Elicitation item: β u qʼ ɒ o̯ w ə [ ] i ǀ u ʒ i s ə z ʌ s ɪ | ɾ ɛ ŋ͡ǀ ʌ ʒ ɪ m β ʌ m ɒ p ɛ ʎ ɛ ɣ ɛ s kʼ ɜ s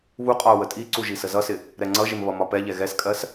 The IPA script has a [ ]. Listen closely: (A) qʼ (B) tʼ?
B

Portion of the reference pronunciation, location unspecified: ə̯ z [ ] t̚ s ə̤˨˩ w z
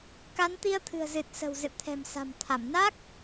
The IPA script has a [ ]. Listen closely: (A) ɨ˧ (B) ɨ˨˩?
B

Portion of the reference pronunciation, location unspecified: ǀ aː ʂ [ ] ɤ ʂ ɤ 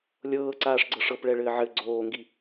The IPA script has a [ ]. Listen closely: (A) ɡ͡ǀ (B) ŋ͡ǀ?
A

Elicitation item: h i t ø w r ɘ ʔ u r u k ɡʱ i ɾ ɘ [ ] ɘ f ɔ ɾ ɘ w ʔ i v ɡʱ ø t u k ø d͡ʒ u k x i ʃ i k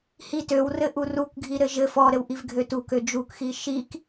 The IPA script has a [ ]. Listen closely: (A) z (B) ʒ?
B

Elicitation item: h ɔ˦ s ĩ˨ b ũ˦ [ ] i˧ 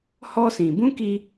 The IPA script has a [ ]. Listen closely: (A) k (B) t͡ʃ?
A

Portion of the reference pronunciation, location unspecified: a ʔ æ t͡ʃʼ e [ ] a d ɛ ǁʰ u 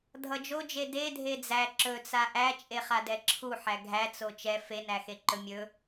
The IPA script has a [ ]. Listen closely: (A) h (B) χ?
B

